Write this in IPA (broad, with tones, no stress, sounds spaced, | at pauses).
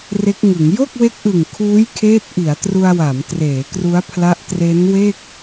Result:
r e˦˥ k̚ ŋ ɯ˩˦ ŋ j o˥˩ k̚ w e˦˥ k̚ ʔ ɯ˨˩ ŋ kʰ uː˦˥ j kʰ eː˦˥ t̚ ʔ i˩˦ a̯ t r u˧ a̯ w a˩˦ m t r eː˩˦ k r u˦˥ a̯ pʰ l a˦˥ ʔ t r e˦˥ n w e˥˩ k̚